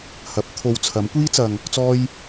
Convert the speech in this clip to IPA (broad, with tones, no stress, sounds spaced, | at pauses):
h ɐ˨˥ p̚ t̪ʰ o˧ w t͡sʰ ɐ˨˥ m kʷ iː˥ t͡s ɐ˧ ŋ | t͡s ɔː˥ j